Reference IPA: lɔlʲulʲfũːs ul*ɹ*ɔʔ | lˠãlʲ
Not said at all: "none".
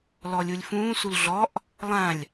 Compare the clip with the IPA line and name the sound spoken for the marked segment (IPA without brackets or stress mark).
ɮ